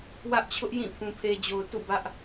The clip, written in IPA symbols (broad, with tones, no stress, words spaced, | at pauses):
wä˦ʔt͡ɕʰʊ˦ʔjĩ˦˨ pʰũ˨pʰe˨d͡ʑo˨ʊ̯ tṵ˦˨bä˦ʔ